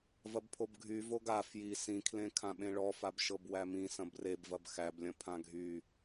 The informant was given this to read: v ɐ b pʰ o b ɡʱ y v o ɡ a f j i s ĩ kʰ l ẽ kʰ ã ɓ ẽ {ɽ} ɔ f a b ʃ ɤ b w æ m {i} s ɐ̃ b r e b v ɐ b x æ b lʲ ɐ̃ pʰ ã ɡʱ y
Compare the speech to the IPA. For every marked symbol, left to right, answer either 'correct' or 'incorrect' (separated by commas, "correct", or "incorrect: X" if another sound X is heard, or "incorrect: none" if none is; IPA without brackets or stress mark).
incorrect: ɭ, incorrect: ĩ